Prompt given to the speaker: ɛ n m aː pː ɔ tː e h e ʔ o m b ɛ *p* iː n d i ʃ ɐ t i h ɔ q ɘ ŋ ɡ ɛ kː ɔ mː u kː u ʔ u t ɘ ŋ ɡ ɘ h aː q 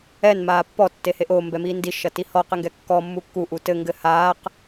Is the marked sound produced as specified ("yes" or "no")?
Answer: no